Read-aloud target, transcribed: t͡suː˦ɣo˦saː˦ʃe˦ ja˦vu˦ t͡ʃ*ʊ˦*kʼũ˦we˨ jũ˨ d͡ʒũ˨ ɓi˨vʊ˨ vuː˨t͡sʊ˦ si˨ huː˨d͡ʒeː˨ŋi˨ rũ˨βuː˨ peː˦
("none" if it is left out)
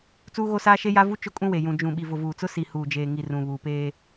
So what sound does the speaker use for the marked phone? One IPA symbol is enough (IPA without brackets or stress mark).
ʊ˦